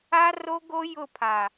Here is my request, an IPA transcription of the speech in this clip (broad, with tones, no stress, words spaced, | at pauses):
a˦ro˦ɡo˦ jʊ˦˨pʰa˨